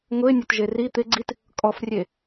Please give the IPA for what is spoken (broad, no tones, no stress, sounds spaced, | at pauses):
ŋ ʊ ɪ̯ nʲ o t ʒ e r i t̪ ɪ ɡ͡ǀ i t | kʼ ɔ f rʲ e